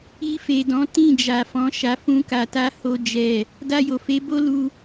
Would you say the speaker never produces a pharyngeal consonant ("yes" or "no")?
yes